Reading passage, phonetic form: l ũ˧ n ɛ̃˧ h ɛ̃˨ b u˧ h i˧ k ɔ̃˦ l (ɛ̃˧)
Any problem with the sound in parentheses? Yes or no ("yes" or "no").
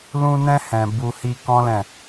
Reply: yes